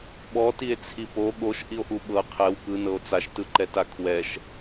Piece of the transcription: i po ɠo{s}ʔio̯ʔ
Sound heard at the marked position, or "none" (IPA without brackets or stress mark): ʃ